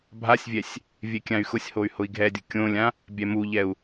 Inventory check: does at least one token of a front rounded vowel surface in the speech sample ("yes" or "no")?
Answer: yes